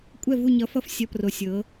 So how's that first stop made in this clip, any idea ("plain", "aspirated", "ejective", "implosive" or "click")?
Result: ejective